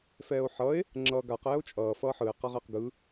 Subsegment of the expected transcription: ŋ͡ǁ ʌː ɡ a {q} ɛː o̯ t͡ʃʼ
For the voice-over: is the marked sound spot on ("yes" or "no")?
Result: yes